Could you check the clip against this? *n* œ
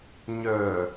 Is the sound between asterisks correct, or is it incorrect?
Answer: incorrect: ɲ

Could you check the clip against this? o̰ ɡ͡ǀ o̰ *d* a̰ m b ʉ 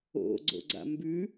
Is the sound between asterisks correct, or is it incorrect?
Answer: incorrect: ɡ͡ǀ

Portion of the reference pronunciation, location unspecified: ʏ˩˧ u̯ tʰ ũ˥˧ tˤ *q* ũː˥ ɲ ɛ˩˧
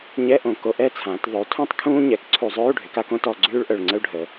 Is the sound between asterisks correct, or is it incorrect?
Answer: incorrect: kʰ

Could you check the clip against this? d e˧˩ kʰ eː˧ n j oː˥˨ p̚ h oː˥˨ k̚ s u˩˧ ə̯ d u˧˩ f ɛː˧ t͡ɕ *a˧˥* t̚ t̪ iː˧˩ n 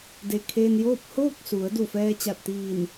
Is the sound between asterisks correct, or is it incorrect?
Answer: incorrect: a˧˩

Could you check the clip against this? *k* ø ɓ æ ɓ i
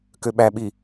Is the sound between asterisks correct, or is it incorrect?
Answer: correct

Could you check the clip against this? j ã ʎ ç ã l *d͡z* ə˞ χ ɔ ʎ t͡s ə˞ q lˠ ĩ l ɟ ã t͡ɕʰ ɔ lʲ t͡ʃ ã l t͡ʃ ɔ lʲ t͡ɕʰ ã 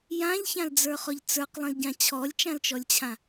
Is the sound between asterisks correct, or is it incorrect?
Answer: correct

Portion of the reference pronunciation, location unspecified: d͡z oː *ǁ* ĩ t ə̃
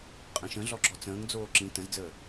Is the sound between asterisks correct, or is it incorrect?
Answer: correct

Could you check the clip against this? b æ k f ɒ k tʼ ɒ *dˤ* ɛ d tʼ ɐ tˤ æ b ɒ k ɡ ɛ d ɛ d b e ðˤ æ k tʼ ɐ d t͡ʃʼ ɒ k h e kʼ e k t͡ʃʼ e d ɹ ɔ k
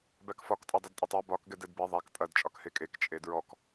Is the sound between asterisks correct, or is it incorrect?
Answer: correct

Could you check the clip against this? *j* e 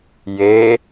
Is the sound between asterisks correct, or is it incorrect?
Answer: correct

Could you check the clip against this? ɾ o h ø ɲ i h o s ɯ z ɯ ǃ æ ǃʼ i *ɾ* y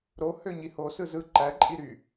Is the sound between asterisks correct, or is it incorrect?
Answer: correct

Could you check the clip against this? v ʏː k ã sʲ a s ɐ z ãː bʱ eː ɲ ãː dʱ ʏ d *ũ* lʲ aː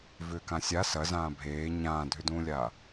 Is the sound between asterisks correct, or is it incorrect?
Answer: incorrect: ũː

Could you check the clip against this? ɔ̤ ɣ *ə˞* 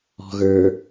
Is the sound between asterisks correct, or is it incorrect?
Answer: correct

